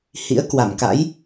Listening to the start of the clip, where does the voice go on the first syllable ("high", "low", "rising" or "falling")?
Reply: rising